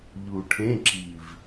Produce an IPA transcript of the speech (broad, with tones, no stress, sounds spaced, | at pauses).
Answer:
ʎ u˨˩ ʈʰ ẽ˧˥˧ ǁ i˨˩ v